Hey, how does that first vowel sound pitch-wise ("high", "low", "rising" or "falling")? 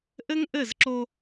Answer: high